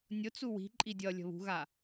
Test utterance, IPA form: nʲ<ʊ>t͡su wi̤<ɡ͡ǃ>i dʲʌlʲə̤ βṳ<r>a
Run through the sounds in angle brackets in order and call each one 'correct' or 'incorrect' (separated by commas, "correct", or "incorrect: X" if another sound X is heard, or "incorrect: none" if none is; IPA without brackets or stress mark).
correct, incorrect: ǃʼ, incorrect: ɣ